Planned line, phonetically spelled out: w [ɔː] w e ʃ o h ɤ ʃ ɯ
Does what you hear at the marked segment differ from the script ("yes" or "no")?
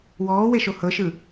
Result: no